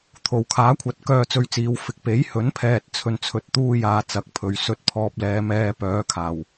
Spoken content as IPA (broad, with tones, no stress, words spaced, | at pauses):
t̪ʰo˨˩wkʰaː˨˥kʷʰɐ˨˥t̚ kœː˧t͡sɵ˧ɥt͡siː˨˧w fɪ˨k̚pe˨˥j hɵ˨˥n pʰɛː˨t̚t͡sʰɵ˨n t͡sʰɵ˨˥t̚t̪uː˧jaː˨ t͡sɐ˨˥k̚pʰɵ˨ɥ sɵ˧t̚pʰɔː˧p̚lɛː˨˧m ɛː˧ pœː˨˧kʰaː˨˩w